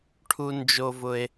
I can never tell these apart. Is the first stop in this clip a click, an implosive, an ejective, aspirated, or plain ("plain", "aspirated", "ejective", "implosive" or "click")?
aspirated